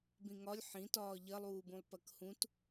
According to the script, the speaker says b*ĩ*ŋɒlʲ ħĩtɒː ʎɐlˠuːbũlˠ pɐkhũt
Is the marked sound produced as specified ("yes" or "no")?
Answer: yes